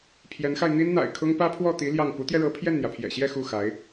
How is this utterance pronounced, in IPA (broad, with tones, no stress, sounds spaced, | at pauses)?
pʰ j ɛ˧˥ n x a˧ ɪ̯ n̪ i˥ n n̪ a̰˨˩ ɪ̯ kʰ ʊ˥ ŋ p ä˥ pʰ w ɔ˥˩ t̪ i˧˥ l j ɑ˥˩ ŋ p u˧˥ t̪ j ɛ˧ ɻ ɤ˧˥ pʰ j ɛ˥˩ n n̪ j ä˩ pʰ j ɛ̰˨˩ ɕ j ɛ˥˧ x u˥˩ x a˧˥ ɪ̯